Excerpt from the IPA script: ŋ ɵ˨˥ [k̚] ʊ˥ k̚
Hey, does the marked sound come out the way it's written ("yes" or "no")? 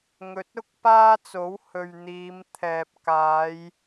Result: no